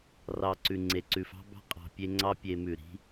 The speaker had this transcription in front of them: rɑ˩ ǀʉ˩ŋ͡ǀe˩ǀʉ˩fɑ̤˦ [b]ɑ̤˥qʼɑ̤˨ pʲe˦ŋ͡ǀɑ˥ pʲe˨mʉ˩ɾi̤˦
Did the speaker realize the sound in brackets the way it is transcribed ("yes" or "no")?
yes